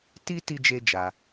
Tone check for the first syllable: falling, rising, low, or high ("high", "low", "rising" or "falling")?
high